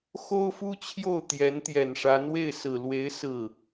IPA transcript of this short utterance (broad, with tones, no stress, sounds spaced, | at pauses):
x o˥ ʊ̯ f u˥ t͡ɕʰ j o˥˩ ʊ̯ t̪ j ɛ˧˥ n t̪ j ɛ˨˩ n ʂ a˧˥ n w e˥˩ ɪ̯ s ɹ̩˨˩ l w e˧˥ ɪ̯ s ɹ̩˥˩